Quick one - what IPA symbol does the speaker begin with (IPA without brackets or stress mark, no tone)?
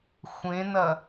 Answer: xʷ